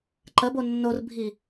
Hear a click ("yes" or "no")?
yes